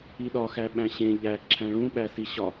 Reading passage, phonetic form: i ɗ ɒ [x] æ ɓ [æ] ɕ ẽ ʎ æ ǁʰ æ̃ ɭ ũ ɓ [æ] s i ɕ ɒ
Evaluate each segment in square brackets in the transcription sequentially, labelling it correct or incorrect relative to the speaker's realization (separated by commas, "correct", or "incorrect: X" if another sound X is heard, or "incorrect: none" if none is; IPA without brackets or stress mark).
correct, incorrect: æ̃, correct